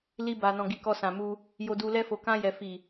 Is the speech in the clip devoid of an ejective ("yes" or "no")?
yes